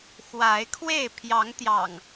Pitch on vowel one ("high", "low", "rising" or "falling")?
rising